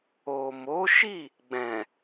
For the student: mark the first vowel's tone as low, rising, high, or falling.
low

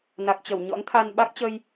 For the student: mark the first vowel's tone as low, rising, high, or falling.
low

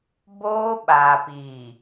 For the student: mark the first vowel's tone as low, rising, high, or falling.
high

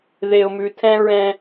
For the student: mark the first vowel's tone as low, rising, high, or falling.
low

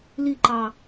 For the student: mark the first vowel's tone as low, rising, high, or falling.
falling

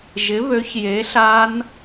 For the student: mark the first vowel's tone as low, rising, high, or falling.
rising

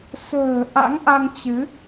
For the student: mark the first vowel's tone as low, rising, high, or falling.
low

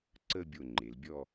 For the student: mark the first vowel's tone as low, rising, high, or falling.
falling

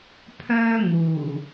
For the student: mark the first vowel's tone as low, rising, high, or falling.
high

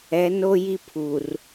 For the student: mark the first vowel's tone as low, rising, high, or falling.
rising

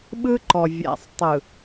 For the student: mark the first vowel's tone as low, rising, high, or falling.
high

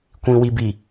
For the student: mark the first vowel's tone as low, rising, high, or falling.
low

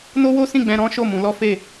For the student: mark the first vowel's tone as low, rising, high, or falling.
high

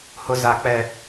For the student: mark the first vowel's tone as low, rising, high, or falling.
high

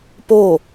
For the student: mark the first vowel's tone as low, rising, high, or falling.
falling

